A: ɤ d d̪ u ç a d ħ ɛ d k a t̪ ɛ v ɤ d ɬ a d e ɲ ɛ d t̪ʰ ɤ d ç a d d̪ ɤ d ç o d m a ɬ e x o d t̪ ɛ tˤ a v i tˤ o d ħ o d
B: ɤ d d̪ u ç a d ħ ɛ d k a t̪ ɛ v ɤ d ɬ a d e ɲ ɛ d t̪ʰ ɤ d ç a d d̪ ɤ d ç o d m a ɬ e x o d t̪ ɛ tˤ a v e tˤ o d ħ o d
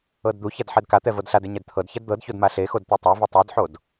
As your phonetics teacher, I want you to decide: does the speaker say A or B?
B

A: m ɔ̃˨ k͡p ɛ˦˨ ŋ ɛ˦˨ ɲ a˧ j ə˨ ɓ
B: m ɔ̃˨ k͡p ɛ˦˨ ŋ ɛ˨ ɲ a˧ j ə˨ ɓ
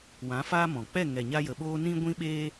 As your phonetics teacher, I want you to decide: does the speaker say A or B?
B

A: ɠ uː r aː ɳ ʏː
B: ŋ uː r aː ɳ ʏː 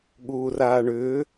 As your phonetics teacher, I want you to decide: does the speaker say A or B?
A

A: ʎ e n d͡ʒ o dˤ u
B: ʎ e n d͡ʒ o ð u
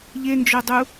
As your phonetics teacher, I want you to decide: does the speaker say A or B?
A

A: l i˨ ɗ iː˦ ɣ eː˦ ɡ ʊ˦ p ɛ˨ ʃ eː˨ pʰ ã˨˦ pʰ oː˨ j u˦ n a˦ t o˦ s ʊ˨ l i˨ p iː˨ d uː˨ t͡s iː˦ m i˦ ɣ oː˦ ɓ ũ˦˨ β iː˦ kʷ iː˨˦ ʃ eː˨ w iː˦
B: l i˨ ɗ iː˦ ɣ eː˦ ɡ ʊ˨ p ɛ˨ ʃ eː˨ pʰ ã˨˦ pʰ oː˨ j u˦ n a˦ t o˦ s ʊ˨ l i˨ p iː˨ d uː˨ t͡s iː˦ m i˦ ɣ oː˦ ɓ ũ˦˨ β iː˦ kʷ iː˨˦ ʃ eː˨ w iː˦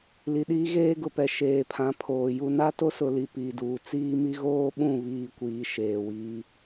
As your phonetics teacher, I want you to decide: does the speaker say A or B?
B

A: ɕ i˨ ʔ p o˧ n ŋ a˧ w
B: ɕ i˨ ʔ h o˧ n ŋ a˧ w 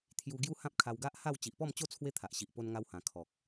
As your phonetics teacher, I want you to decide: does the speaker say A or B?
A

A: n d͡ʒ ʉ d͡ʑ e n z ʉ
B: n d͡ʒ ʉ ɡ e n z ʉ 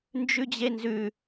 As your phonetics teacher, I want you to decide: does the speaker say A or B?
A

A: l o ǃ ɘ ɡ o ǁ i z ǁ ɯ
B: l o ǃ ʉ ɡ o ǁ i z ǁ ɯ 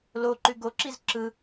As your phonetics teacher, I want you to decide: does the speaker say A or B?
B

